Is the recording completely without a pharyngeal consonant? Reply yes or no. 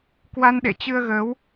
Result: yes